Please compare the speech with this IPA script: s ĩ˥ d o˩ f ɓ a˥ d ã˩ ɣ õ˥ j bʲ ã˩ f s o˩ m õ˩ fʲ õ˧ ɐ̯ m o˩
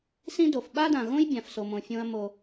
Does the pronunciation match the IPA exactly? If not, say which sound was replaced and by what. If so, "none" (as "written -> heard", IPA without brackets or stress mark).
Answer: none